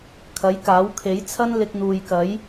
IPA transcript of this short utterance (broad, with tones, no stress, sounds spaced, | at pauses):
kʰ ɐ˨˥ j k aː˨˥ w kʰ e˨˥ j t͡sʰ ɐ˥ n l ɪ˧ k̚ n̪ uː˨ j k ɐ˨˥ j